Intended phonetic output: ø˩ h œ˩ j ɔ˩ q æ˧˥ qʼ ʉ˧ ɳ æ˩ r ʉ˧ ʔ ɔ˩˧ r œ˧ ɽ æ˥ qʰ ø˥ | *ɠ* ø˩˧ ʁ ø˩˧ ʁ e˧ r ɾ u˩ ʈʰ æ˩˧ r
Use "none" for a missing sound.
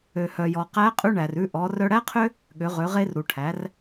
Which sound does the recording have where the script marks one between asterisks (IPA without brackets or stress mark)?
ɠ